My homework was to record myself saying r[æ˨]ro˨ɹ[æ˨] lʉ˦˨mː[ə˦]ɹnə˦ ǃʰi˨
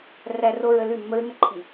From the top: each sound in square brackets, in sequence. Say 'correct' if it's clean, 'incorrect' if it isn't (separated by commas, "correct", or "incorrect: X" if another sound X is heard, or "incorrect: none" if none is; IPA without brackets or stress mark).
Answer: correct, incorrect: ə˨, correct